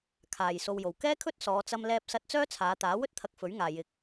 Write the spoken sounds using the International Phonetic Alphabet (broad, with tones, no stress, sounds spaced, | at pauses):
kʰ aː˨ j s o˧ w j o˨ w k ɛː˥ kʰ ɵ˥ t̚ s ɔː˨˧ t͡s ɐ˧ m l ɛː˧ p̚ s ɐ˧ t̚ t͡s œː˥ t͡sʰ aː˨˧ t̪ aː˨˥ w ɵ˥ t̚ t̪ʰ ɐ˧ k̚ f ɵ˨˥ ɥ ŋ aː˨ j ɪ˨ k̚